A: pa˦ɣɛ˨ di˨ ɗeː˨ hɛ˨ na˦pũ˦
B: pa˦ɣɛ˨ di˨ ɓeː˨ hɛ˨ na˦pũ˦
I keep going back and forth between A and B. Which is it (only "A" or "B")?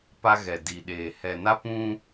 A